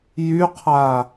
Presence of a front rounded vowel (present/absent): present